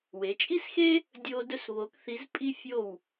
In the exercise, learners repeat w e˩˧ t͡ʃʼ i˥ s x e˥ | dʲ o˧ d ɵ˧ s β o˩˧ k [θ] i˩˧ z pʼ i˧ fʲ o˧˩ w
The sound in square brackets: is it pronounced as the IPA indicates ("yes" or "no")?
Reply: yes